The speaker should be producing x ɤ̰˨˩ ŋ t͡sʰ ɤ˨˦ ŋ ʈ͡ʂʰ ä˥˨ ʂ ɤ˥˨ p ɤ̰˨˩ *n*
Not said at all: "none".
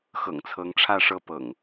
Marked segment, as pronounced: ŋ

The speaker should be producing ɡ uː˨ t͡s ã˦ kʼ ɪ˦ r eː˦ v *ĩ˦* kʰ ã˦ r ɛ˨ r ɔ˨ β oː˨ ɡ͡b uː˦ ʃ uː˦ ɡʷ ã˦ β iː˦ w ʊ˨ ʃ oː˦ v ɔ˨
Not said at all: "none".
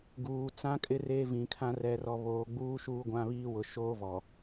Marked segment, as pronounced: ĩ˨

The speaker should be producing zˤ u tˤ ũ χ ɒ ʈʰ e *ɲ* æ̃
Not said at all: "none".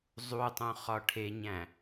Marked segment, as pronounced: ɲ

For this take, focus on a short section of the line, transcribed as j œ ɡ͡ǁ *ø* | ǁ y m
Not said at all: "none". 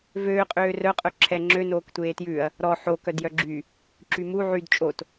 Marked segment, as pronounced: y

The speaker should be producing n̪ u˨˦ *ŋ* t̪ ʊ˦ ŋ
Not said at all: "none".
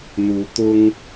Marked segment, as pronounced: none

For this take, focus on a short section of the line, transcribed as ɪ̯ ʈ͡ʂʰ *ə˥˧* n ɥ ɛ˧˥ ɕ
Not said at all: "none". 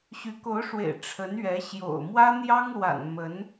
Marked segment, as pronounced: ə˧˥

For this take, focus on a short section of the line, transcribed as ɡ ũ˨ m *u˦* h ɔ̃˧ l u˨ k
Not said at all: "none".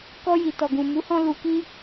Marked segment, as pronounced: u˨˦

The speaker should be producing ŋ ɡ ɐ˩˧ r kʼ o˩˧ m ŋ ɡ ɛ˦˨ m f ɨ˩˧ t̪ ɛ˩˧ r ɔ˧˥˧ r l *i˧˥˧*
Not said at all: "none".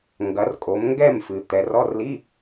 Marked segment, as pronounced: i˧˥˧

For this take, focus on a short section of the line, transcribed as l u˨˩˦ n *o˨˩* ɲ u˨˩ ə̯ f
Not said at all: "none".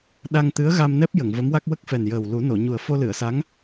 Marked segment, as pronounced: o˨˩˨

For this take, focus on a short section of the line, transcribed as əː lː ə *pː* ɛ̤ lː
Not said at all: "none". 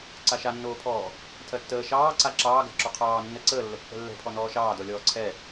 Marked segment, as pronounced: pː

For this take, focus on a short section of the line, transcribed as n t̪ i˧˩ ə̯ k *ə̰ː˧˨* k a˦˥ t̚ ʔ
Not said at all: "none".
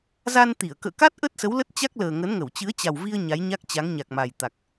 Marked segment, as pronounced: ə̰ː˧˨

